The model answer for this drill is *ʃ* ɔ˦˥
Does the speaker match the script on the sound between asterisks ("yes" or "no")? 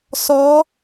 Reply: no